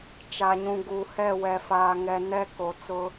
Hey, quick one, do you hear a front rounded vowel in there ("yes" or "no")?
no